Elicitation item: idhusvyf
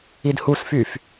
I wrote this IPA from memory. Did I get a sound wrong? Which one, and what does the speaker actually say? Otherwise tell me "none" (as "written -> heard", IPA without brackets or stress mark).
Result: v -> f